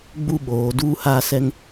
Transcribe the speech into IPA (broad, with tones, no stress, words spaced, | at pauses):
ɡ͡bu˦˨ɓoː˨˦ duː˦haː˦sɛ˦ŋ